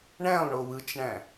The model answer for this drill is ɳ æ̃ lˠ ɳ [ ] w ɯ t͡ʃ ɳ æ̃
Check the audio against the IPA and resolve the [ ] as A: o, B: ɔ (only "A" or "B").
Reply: A